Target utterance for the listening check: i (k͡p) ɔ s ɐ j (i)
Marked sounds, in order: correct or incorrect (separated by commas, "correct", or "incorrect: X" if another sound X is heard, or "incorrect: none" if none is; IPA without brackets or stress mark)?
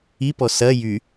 incorrect: p, incorrect: y